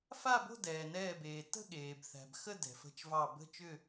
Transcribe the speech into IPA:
f a˥˨ b o̤˥˨ d ɛː˩ n ɛː˧˩ b eː˩ t ə̤˥˨ ɠ eː˩ b θ æ̤˩ b x ə˥˨ d ɛ̤˩ f ə̤˧˩ t͡ʃ v ɑ˧˩ b ə̤˥˨ t͡ʃ ʏ˥˨

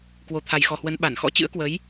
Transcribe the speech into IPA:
k w o˨˩ t̪ʰ a˨˩ j x ɔ˨˩ h w ə˨˦ n ɓ a˧˩ n x ɔ̰˧˥ t͡ɕ ɨ̰˧˥ ə̯ k w ə˨˦ j

